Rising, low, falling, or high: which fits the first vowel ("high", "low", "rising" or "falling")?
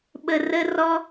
high